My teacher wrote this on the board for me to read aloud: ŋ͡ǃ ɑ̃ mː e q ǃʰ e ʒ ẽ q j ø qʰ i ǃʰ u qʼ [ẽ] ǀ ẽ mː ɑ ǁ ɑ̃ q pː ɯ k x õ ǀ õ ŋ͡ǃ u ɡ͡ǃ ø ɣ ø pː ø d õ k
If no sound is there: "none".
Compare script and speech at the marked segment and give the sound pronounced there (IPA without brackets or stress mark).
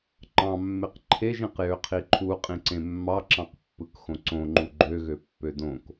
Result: ĩ